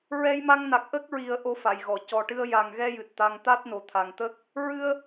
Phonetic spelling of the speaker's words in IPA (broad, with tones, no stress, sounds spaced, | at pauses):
ɹ ɛ˧ j m a˧ ŋ n a˨˩ k̚ ʔ ə˦˥ k̚ ɹ i˨˩˦ ə̯ ʔ o˧ f a˨˩˨ j ɣ ɔ˨˩˨ c ɔ˨˩ ʈ ɨ˧ ə̯ j a˨˩ ŋ ɣ ɛ˧ j ɨ˨˩ t̚ t̪ a˧ ŋ t̪ a˦˥ t̚ n o˨˩ t̪ʰ a˨˩ ŋ t̪ ə˦˥ k̚ | ɹ ɨ˧ ə̯